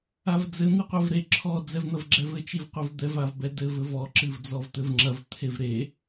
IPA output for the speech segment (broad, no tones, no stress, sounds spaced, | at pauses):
a v d͡z ɘ n̪ i qʷ ɛ v ɾ e ǁʰ ɔ d͡z ɛ v n̪ ɐ v ɡ͡ǁ ɛ v ɘ t͡ʃ i v qʷ i v d̪ ɛ v a v b ɛ d ɘ v ɘ v ɔ ǁ ɨ v d͡z ɔ v t̪ ɘ v ŋ͡ǁ ɐ v t̪ʰ e v ɾ e